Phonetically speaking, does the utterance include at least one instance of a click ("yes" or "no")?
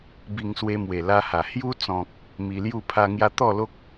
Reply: no